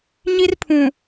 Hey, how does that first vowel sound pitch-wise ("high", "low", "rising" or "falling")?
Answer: high